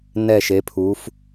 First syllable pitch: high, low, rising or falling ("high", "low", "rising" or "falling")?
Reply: falling